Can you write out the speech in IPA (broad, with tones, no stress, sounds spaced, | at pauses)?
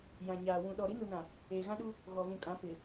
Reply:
j ã˨ ɲ aː˨ w ũ˨ ɗ ɔ˨ ɾ i˨˦ n u˨ n ã˨ | eː˨ ɣ ã˦ ɗ u˦ | ɣ ɔ˨ v ũ˨ kʼ ã˨˦ p ɪ˨